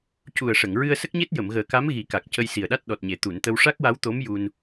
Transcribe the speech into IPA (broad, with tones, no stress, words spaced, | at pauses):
cu˨˩ə̯ʂə˨˩˨ŋ ɹɨ˧ə̯sə˦˥k̚ɲe˦˥t̚ jə˨˩˨mɣəː˨˩ka˧˥m ɣi˨˩˦ka˨˩k̚ cə˧jsi˨˩ə̯ɗa˦˥t̚ ɗɔ˨˩t̚ɲe˨˩t̪u˨˩˨nt̪ə˧w ʂa˦˥k̚wa˧˥wt̪o˧˥m ju˧n